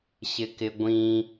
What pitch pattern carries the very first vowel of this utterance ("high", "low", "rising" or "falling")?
high